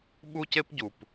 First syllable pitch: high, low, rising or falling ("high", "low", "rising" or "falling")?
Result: high